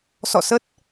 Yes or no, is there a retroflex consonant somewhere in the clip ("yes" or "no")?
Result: no